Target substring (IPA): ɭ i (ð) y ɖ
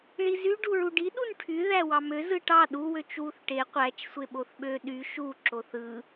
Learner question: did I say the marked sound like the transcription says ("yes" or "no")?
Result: no